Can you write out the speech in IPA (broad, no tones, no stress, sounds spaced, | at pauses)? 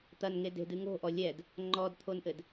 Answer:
t̪ ɐ n ŋ e d e̤ d ɨ ŋ o̤ ʔ ɔ lʲ ɛ d | ŋ͡ǃ ɔ d t̪ʰ o n ʔ ɘ d